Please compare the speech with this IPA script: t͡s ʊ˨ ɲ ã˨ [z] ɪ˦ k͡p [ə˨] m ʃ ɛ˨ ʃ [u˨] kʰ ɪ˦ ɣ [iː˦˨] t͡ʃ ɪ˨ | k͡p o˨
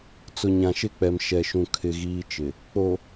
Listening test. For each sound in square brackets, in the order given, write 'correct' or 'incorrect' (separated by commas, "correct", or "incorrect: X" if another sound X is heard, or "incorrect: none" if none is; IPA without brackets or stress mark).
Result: incorrect: ʃ, incorrect: ɛ˨, incorrect: ũ˨, incorrect: iː˦